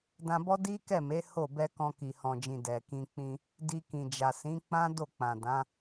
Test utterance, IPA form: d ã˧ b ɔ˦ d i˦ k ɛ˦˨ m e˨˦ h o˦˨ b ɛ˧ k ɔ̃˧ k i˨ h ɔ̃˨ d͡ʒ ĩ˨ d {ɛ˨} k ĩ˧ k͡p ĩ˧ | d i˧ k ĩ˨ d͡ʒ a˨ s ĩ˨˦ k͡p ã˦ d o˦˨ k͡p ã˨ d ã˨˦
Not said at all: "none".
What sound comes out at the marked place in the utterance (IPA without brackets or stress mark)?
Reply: ɛ˨